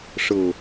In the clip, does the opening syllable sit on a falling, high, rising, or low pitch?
low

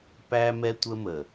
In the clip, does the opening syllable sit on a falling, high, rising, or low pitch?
high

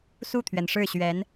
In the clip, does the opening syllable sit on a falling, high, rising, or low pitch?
falling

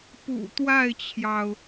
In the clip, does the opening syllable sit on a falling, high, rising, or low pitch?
low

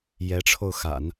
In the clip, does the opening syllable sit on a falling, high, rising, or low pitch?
rising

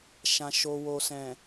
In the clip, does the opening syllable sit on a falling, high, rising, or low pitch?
low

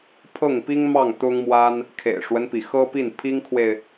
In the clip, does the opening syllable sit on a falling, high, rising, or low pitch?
falling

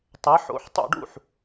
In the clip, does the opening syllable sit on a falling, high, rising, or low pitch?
rising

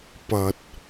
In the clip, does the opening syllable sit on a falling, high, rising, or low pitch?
low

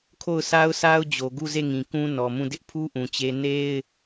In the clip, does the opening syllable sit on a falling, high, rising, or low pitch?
falling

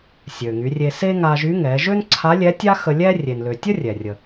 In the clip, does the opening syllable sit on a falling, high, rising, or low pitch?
low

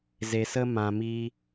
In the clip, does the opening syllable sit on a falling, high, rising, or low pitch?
low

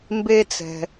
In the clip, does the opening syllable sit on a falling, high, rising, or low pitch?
high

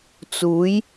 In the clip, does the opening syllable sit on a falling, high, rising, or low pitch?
rising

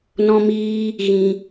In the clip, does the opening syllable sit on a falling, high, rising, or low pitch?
high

